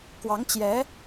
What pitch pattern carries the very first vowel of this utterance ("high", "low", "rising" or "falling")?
rising